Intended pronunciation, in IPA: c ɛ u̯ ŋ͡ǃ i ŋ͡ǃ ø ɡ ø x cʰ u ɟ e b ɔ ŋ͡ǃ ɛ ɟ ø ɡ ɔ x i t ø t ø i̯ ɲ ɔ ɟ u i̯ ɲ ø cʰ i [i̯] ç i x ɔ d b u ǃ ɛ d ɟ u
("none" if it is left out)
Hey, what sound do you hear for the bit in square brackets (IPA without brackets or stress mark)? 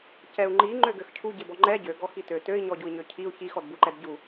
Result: u̯